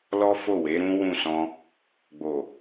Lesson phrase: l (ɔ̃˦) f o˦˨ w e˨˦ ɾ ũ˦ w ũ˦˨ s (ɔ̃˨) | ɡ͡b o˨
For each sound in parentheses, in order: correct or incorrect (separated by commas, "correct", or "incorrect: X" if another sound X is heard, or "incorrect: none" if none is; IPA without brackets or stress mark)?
incorrect: ɔ˦, incorrect: ɔ̃˧